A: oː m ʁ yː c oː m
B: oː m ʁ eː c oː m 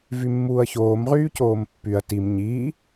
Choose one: A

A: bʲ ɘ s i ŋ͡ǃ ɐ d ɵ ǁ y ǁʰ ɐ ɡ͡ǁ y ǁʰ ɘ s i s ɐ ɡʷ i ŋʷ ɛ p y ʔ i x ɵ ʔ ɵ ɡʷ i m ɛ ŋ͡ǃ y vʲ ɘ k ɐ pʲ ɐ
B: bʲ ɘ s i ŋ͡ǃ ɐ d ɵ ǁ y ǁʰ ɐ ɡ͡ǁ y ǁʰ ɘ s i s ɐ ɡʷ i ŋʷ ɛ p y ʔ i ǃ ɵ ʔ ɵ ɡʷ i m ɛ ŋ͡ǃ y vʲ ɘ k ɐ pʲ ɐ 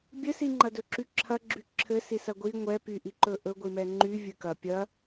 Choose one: B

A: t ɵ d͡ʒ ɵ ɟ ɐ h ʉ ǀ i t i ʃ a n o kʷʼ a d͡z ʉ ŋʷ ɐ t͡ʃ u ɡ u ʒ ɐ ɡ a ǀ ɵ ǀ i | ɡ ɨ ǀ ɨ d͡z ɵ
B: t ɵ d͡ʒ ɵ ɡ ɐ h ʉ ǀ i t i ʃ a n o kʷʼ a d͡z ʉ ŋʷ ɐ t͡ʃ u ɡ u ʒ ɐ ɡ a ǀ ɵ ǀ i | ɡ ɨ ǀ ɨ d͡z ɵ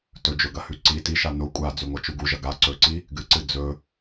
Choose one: B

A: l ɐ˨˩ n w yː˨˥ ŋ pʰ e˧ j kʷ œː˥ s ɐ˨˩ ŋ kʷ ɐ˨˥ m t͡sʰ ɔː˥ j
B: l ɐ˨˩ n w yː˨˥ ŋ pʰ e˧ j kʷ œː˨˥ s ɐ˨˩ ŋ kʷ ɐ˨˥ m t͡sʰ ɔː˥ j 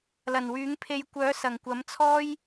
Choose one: B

